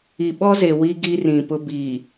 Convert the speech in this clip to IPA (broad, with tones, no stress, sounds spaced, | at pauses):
i˨ ɓ ɔ˦ z e˨ w i˦ ɡ i˦ r ĩ˨ p ʊ˦ b iː˨